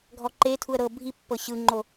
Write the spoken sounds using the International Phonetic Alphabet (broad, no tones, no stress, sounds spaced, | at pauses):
ɡʱ ɔ ǃ e tʰ u ə̯ ɾ ɤ bʱ i pː ɤ ɕ ɯ ŋ͡ǃ o